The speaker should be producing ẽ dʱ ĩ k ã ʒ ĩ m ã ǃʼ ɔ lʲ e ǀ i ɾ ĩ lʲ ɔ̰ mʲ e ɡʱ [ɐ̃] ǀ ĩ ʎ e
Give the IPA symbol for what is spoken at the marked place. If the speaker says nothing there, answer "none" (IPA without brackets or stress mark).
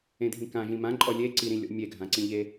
ã